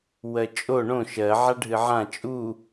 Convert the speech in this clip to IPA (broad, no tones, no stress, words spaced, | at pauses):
wɜt͡ʃʼo ɳõ ʃɜʕa ɖʱɨʕã t͡ʃʼu